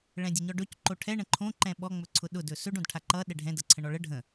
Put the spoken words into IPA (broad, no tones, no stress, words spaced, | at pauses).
ɭɛ̃dʲəɲɔɖɵc ǃoʈʰɛ ɳə̃ǃʰõ ǃɛ̃ɓɔ ŋ͡mɵǀʰʊɗʊd ɵsɵɖ õdʈʰaǃʌ ɗɛɖʱɛ̃ dʌǀʰə̃ɳɔɭə ɖʱə̃